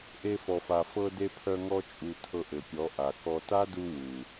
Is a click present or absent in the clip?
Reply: absent